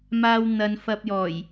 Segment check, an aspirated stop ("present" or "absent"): absent